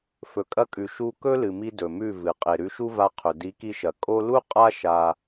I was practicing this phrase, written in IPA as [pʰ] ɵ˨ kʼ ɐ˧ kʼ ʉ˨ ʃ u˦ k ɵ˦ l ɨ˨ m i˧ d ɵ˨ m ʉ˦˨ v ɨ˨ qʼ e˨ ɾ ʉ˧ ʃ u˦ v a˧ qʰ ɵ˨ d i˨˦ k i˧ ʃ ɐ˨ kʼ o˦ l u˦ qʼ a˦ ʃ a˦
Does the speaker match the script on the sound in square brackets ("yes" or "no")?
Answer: no